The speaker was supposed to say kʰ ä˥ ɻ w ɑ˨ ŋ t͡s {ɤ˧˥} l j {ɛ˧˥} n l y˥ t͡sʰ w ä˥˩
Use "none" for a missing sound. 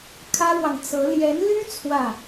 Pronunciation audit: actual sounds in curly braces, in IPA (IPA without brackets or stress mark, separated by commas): ɤ˧˥, ɛ˧˥